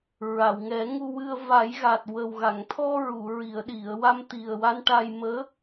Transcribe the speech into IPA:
ɹ a˨˩˨ w ŋ ɛ˨˩˦ ŋ u˧ w ɨ˧ ə̯ v a˨˩˦ j ɣ a˨˩ t̚ w ə˨˩ w ɣ a˨˩˨ ŋ t̪ʰ ɔ˧ ɹ u˨˩˨ ɹ i˨˩˨ ə̯ ɗ i˨˩˨ ə̯ w a˧ m t̪ i˨˩ ə̯ w a˧ n ʈ a˧ j m əː˧˥

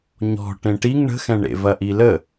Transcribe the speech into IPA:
ɲ ɔ̤ ʈ ẽ ʈ i ŋ ɳ ə̤ x ɛ̃ ɳ ḛ v ɐ ʔ i l ə

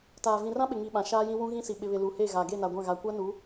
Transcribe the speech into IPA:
t aː˨ v ĩ˨ r ã˦ ɓ ɪ˨ ŋ i˨ ɓ ã˨ ʃ aː˦ j ĩ˦ w ũ˦ ɣ ĩ˦ s i˨ ɓ ɪ˨ β ɪ˨ l u˨ h e˦˨ ɣ a˨ ɡ e˦˨ n a˨ ɡʷ ã˦˨ ɣ a˨ kʷ a˦ n u˨˦

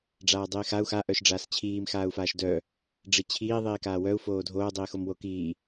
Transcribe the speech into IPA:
ɖ͡ʐ aː dˤ iː x a u̯ x a ʔ œ ʃ ɖ͡ʐ aː s t͡ɕʰ iː m x aː u̯ f aː ʃ d œ | ɖ͡ʐ i t͡ɕʰ iː ðˤ iː k aː w œ u̯ f oː dʱ oː dˤ iː x o m w o k iː

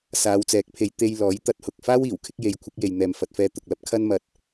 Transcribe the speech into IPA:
s aː˨˧ w t͡s ɛː˨˥ k̚ pʰ e˨˧ j t̪ e˧ j l ɔː˨˥ j t̪ ɐ˧ t̚ h ʊ˨ k̚ f aː˥ w iː˨˩ w kʰ ɪ˥ k̚ j e˨˧ j kʷʰ ɪ˨˥ k̚ j e˨ j n̪ ɛː˨ m f ɐ˨ t̚ f ɛː˧ t̪ ʊ˨ k̚ l ɐ˥ p̚ kʰ ɐ˥ n m ɐ˧ t̚

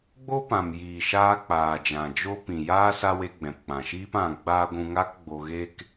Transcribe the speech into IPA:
ɡ͡b o˦ p ã˨ m j iː˨ ʃ aː˧ k͡p aː˨ d͡ʒ ã˨ d͡ʒ o˦ p ĩ˨ j aː˦ s a˦ w e˧ ɡ͡b ɛ̃˨ p k͡p ã˨ ʃ iː˦ p ã˧ ɡ͡b aː˦ ɡʷ ũ˧ ŋ a˦ k ɡ͡b o˧ ɣ e˦ k

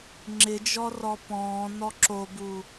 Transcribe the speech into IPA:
ŋ͡ǁ ɪ d͡ʒ ɔ r ɔ p ɔ̃ː n ɔ ǁ o b u

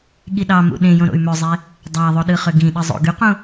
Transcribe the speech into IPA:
ɠ i ɗ ɑ m ṵ ɗ ẽ j õ ɾ o̰ y̯ m ø zˤ e | dˤ æ ðˤ o ɗ ɯ χ ø ɡ ĩ ɗ ɯ zˤ o̰ ɡ y q ũ

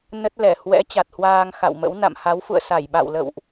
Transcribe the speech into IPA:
n ə˦˥ t̚ l ɛ˧˩ h w ɛ̰˧˥ t͡ɕ a˨˩ t̚ h w aː˧ ŋ x a̰˧˨ w m ə̰˧˥ w n a̰˧˨ m h a˨˦ w f ṵ˧˨ ə̯ s a˧˩ j ɓ a̰˧˨ w l ə̰˧˨ w ʔ

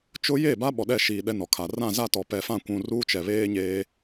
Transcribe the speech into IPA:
t͡ʃ ʊ˦ j eː˦˨ b a˦ ɓ ɔ˨ ɗ ɛ˦˨ ʃ i˨ ɗ ɛ˦ n ɔ˨ kʰ a˨ r ã˦˨ z a˦˨ t ɔ˨ p ɛ˨ f ã˦˨ kʷ ũ˨ r uː˦ t͡ʃ ɛ˨ β eː˦ ɲ eː˦

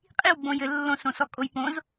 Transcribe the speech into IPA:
qʼ i w ɡ͡b õ j ɘ lː õ s õ s ɔ kʼ o j p õ z

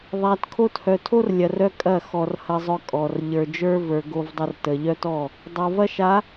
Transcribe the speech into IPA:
ðˤ æ˨ t kʰ o˦ t h œ˨ tʰ o˦ r lʲ ɐ˨ r œ˦ kʼ ɐ˦˨ x ɔ˨ r h ɐ˦ zˤ œ˦ kʼ ɔ˨ r ʎ ə˞˨ d͡ʒ ə˞˦ v ə˞˨ ɡ o˦ v dˤ ɐ˦ r t ə˨ ʎ œ˦ t ɔ˦˨ | dˤ o˨ v ɐ˦ ʃ a˨˦

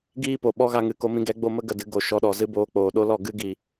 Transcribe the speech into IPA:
ɡ iː˦ p o˨ ɓ ɔ˦ ɣ a˧ ŋ ɨ˨ k o˧ m ĩ˧ ɡ ɛ˨˦ ɡ͡b o˧ m ə˦ ɡ ə˨ d ɨ˧ ɡ o˨ ʃ ɔ˧ ɗ ɔ˨ z ɨ˦ b oː˧ k͡p oː˨ ɗ o˦ l ɔ˦˨ ɡ ɨ˦ ɡ i˨

